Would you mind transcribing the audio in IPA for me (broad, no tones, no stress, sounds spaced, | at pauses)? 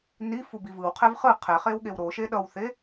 n i f u b i v ɯ w qʰ ɛ v χ ɯ qʰ ɛ χ e w ɠ e w ɾ o ʃ e ɗ ʌ w θ e